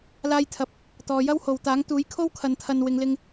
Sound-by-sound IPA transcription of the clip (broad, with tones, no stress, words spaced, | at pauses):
laː˧jt̪ʰɐ˨˥p̚ | t̪ɔː˨jɐ˥who˨wt̪aː˨˥ŋ t̪uː˨˥jkʰo˥w kʰɐ˧nt̪ʰɐ˧n wɪ˨˧ŋlɪ˧ŋ